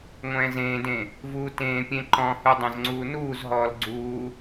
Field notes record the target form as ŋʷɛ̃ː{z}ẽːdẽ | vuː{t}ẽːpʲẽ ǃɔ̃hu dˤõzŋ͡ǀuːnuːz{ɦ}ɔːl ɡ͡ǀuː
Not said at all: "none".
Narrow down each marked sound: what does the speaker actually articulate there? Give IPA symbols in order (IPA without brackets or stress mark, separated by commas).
z, t, ɦ